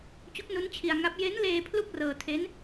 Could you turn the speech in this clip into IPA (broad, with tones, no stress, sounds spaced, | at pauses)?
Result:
t͡ɕ u˦˥ k̚ n u˦˥ n t͡ɕʰ i˧ a̯ ŋ a˦˥ p̚ j e˦˥ n l eː˧ pʰ l u˥˩ k̚ r ɤː˧ tʰ e˦˥ n